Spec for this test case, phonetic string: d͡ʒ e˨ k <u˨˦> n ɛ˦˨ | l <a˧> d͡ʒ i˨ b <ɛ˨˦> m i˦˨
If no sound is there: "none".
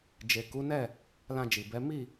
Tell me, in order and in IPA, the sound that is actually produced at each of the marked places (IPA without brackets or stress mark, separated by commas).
u˨˦, ã˧, ɛ˨˦